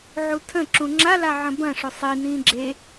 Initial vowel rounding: rounded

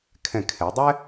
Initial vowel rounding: unrounded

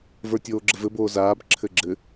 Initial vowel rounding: unrounded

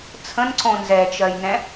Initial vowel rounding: unrounded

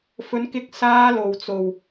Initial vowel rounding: rounded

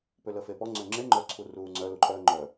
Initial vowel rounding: rounded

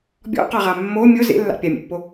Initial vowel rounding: rounded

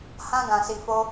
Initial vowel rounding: unrounded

